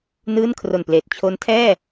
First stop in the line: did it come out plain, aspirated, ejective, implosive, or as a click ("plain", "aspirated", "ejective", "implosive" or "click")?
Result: aspirated